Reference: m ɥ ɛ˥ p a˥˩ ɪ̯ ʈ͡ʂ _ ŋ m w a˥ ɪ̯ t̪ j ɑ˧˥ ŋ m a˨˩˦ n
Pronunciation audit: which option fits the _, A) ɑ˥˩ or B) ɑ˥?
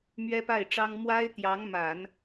B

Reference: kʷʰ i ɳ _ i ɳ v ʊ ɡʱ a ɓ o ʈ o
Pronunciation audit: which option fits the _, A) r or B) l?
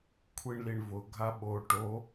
B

